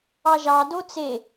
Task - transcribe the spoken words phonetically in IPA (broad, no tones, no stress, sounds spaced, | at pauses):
ɑ ʒ ɑ d o t͡s e